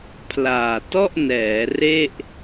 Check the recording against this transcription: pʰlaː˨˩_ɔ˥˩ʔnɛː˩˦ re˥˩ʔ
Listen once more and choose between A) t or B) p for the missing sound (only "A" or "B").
A